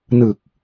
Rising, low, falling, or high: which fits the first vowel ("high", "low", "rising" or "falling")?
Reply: low